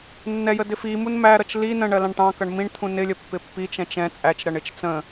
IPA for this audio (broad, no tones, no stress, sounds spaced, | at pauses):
nː ɛ j ə d ɪ f i m u n m æ ɾ ʌ t͡ʃ l i n ə̃ ɳ ɜ l ɑ̃ ɳ ʈ ɑ̃ k ʌ ɳ m ĩ ɳ t̪ʰ ũ n ɪ lʲ ə pː ɪ pː i t͡ʃ ɛ̃ t͡ʃ ɛ̃ t͡sʼ æ t͡ʃ ɾ ʌ ɳ ɪ t͡ʃ t͡s ə̃